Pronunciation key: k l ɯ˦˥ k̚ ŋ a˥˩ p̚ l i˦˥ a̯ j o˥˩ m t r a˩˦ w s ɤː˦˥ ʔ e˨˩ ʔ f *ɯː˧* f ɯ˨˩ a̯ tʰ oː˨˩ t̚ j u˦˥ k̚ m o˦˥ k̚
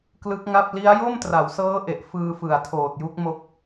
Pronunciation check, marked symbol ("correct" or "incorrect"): correct